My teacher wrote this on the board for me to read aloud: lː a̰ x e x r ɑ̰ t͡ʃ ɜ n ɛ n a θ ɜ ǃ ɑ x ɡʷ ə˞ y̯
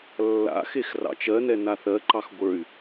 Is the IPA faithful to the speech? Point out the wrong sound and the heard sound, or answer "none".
none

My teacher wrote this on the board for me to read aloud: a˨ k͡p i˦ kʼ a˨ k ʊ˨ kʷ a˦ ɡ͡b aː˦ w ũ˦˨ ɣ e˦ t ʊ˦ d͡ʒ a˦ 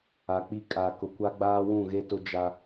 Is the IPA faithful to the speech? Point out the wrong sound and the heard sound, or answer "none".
none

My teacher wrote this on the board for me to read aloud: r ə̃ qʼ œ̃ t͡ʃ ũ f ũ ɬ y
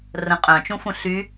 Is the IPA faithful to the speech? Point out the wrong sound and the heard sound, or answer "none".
none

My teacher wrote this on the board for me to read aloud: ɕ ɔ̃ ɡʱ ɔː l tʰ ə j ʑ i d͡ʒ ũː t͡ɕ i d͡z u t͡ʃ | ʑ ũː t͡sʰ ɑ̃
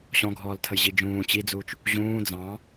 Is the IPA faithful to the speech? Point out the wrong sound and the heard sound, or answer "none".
t͡sʰ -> d͡z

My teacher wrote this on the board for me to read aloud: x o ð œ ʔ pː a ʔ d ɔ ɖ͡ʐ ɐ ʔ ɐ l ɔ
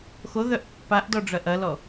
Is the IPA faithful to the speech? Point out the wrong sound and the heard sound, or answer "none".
none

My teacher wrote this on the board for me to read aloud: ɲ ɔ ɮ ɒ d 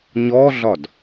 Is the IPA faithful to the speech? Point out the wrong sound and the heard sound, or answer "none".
none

